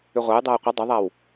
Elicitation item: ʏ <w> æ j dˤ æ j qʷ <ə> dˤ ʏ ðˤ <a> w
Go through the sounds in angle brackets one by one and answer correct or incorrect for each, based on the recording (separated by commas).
incorrect, correct, incorrect